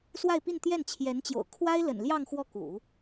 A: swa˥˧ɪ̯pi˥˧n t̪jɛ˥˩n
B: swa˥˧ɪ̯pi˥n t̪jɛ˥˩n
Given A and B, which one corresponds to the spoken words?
A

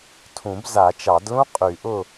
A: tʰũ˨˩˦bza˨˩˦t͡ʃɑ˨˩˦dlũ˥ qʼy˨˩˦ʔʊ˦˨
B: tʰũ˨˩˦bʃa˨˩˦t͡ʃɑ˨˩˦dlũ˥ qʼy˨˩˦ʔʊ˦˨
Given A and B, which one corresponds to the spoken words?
A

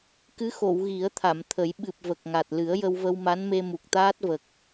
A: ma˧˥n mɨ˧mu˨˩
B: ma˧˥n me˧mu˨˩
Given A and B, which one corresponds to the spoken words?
B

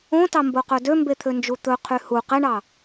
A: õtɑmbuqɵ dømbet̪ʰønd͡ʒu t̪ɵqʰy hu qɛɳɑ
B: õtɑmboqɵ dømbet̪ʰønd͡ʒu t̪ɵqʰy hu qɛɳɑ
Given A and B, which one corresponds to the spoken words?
B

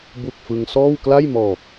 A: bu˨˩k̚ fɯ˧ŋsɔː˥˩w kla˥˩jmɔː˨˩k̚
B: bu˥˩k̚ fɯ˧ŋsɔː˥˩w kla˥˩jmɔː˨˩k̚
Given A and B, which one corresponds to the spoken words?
A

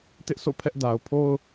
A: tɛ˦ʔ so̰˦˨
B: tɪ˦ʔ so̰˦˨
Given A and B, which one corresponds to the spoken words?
B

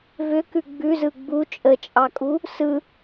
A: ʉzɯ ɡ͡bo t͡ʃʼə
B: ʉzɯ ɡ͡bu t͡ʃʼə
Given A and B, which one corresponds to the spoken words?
B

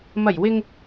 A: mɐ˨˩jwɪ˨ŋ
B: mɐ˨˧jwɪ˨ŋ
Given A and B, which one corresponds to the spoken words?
A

